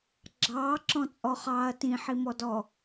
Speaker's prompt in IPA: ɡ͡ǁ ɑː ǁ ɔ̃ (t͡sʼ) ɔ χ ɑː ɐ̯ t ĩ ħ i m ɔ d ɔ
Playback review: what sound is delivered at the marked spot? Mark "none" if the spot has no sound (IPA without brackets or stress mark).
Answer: t͡sʼ